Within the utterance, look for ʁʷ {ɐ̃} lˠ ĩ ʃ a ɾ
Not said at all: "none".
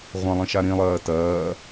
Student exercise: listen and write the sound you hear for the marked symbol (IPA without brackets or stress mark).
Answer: ɐ̃